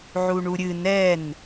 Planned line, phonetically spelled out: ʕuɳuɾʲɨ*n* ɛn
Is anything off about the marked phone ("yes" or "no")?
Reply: no